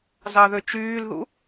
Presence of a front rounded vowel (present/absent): present